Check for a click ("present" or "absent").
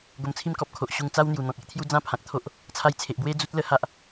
absent